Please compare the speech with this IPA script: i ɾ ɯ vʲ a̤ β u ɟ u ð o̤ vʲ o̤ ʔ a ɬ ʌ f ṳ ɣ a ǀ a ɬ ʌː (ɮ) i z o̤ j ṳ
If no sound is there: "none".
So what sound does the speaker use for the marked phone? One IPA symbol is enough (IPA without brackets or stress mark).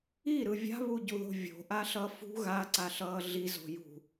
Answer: ɮ